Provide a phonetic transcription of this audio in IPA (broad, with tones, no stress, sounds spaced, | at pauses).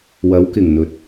w ɐ˨˥ w k ɪ˨˩ ŋ n̪ ɵ˨˥ t̚